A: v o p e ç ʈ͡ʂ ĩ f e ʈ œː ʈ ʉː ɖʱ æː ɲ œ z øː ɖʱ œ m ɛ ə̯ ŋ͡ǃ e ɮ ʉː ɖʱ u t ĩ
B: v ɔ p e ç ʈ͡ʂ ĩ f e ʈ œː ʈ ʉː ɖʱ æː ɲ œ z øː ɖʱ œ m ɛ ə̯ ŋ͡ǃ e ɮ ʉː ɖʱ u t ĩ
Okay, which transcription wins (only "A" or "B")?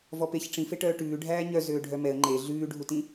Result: B